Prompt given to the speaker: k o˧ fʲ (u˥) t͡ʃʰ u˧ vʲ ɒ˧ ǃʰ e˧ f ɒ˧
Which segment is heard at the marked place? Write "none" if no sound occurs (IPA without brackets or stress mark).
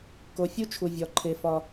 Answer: u˥